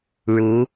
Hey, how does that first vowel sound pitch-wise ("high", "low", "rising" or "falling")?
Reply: rising